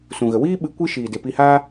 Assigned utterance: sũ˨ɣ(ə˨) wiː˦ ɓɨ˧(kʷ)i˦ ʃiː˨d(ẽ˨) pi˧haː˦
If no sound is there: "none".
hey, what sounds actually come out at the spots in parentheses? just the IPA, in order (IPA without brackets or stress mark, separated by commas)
ə˨, kʷ, e˨